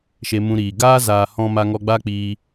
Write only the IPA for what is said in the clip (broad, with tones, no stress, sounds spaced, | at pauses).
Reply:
ʃ e˧ m ũ˧ ɾ iː˨ ɡ aː˦ z aː˨ h ɔ̃˧ m a˧ ŋ ɔ˧ ɡ͡b a˦ k͡p iː˧